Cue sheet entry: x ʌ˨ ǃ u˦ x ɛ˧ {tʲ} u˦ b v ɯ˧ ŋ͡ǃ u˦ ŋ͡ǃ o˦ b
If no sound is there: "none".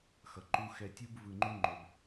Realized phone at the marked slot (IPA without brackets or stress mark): tʲ